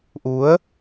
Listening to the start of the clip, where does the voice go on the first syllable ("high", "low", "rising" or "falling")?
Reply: rising